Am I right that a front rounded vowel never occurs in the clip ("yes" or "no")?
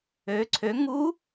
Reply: no